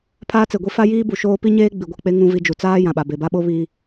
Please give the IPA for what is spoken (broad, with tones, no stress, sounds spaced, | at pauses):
pʰ aː˦ t͡s e˨ ɡʷ i˦ f a˦ j iː˦ b u˨ ʃ oː˦ p i˦ ɲ eː˦ ɡ͡b i˨ ɡʷ ɛ˨ k͡p e˦ ŋ ũ˦ v i˦ d͡ʒ u˨ t͡s aː˦ j ã˨ ɓ a˨ b e˨ b a˦ ɓ o˦ β iː˦